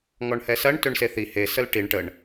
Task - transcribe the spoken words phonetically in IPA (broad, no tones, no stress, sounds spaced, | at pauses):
ŋ ɔ ɳ h ɛ s ɐ ɳ t ø ɳ s e θ i h e s ə l ʈ i ɳ ʈ ə ɳ